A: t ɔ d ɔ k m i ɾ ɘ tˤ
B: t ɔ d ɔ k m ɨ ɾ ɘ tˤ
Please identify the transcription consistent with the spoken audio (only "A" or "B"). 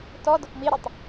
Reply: A